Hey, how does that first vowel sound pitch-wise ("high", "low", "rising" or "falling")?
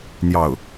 falling